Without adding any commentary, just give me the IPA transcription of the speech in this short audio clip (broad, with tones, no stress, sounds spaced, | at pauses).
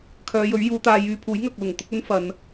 kʰ œː˨˧ j ɵ˨˥ ɥ j uː˨˧ t̪ aː˧ j yː˧ pʰ uː˨˥ j ŋ ɐ˨ k̚ l ʊ˨˩ ŋ t̪ ʊ˥ k̚ ɵ˥ n f ɐ˨˧ n